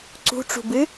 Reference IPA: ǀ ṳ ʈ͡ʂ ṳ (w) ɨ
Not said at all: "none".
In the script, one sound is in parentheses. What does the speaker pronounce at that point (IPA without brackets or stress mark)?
b